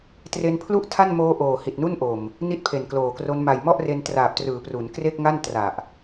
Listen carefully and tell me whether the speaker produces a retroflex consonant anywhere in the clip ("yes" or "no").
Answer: no